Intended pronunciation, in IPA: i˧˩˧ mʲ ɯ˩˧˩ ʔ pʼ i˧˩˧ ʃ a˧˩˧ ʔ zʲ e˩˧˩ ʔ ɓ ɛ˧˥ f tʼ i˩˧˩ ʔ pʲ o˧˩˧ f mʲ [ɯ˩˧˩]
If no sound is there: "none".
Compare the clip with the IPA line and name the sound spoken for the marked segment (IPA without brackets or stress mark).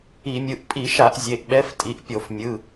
ɯ˩˧˩